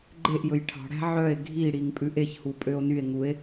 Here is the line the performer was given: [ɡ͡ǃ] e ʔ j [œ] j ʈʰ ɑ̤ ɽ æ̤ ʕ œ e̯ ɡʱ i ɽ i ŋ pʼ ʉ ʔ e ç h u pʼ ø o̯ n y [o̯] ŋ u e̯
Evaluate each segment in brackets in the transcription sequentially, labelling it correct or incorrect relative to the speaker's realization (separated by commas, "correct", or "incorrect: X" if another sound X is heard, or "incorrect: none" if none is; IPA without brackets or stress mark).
correct, incorrect: ɵ, incorrect: e̯